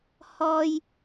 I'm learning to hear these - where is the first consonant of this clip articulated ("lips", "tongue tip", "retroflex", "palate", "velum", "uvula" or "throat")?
throat